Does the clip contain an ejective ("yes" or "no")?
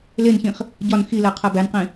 no